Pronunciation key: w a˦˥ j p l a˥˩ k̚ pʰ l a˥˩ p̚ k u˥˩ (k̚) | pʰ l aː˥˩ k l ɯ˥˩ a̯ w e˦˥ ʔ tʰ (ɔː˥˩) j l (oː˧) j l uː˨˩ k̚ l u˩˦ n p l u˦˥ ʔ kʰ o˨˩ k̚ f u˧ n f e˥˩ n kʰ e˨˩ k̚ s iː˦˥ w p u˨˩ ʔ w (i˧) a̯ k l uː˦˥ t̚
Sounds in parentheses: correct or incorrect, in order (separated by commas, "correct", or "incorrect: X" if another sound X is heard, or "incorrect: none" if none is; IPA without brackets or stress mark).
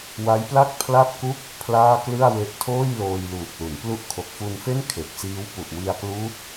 correct, incorrect: oː˥˩, correct, correct